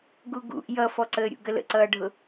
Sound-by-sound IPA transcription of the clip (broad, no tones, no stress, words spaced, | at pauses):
ɡuɡṵʔ jʌfɔǀəːɾʲṵ ɡələ̰ǀʌːɖʱʊ